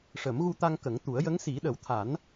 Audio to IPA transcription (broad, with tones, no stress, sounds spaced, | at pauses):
ʂ ə˨˩˦ m ɣ u˧ t̪ a˧ ŋ k ə˨˩˦ ŋ t̪ u˨˩˦ ə̯ j ə˧˥ ŋ s i˨˩˦ ɗ ə˨˩˦ w t̪ʰ a˨˩˦ n